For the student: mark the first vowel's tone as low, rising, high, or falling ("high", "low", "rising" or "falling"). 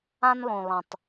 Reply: high